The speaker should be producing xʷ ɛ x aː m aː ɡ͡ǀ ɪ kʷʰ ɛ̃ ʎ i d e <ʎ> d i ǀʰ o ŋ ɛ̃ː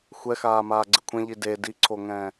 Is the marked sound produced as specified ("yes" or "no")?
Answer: no